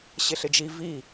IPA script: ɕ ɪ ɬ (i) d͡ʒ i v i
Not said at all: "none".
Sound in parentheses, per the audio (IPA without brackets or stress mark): ɪ